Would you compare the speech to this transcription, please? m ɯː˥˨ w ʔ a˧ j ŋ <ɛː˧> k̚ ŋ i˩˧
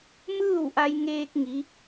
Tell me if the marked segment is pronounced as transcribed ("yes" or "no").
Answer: no